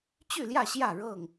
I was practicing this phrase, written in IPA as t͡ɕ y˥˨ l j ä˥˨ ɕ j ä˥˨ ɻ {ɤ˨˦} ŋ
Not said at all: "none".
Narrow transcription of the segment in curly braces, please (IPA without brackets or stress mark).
ɤ˥˨